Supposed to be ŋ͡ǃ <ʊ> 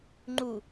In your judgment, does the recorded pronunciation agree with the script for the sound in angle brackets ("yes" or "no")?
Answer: no